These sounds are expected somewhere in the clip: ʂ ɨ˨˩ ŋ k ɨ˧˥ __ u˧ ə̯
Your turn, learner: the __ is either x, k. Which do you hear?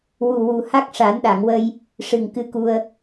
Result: k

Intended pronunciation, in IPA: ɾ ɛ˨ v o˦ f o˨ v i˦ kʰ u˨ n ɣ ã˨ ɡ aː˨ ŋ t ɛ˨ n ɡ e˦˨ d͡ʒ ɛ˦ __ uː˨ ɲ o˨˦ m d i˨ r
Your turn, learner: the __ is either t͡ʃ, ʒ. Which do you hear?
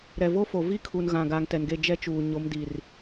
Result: t͡ʃ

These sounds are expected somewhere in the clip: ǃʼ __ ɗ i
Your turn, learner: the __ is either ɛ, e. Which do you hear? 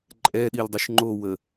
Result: ɛ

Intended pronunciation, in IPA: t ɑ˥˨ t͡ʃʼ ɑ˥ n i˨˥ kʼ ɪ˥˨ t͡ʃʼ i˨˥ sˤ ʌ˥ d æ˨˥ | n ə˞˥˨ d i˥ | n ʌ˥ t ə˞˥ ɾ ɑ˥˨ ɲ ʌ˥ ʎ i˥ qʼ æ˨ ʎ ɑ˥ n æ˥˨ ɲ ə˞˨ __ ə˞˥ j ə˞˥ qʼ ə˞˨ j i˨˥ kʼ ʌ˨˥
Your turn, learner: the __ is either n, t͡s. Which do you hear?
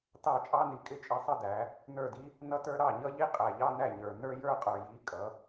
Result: n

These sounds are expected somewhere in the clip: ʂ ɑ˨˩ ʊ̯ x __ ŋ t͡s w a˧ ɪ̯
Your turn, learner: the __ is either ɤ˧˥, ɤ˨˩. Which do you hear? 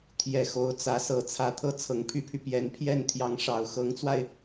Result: ɤ˧˥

